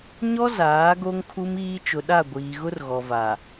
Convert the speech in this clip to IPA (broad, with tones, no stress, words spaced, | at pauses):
ɲɔ˦zaː˨˦ ɡo˦ŋkʰu˦miː˦ t͡ʃʊ˨ɗa˦˨ɡʷiː˨ɣʊ˦r ɣɔ˨va˨